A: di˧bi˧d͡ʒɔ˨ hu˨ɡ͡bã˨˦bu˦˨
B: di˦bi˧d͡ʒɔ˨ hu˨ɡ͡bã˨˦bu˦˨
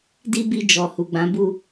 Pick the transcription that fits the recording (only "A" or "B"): B